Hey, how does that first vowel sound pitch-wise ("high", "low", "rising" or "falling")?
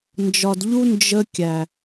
low